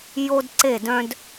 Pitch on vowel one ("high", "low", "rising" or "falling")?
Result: high